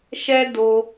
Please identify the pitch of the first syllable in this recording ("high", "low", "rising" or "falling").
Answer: high